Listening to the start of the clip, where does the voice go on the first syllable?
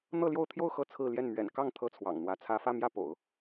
falling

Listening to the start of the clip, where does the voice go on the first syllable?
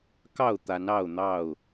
falling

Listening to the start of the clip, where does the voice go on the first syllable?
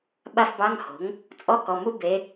falling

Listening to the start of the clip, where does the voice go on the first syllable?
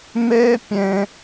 high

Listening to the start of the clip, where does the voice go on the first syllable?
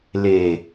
low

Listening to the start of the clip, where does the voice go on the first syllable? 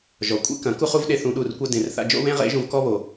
low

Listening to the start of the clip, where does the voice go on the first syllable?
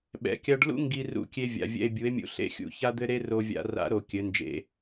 low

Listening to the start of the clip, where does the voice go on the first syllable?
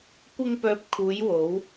high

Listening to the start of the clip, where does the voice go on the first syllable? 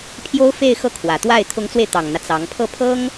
high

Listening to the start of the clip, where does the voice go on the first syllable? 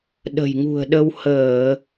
low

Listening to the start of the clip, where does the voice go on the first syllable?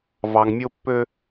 low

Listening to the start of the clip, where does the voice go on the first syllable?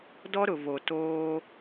high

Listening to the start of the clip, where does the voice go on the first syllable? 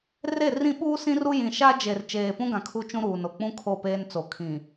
falling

